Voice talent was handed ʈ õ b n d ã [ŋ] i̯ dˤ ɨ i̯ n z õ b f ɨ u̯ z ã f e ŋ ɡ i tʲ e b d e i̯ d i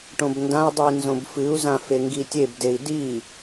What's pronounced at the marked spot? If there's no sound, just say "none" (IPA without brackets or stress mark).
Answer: none